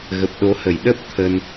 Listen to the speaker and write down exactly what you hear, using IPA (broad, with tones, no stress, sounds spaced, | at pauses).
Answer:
ɣ ə˨˩ p̚ ɗ o˨˦ h ə˧˩ j ɗ ə˦˥ p̚ t̪ʰ ə˧ n